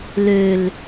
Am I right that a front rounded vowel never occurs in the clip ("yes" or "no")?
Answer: no